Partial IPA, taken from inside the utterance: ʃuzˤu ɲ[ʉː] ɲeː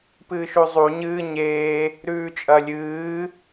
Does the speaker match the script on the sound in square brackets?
no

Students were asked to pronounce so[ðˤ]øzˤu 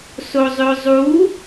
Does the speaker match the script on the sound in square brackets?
no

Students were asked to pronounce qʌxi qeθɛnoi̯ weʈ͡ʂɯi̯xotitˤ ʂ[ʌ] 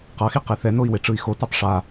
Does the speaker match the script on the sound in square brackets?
no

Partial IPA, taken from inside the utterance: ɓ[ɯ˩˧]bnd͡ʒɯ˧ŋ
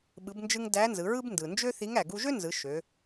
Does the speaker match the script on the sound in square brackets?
yes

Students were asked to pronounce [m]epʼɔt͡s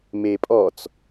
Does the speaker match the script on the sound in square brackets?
yes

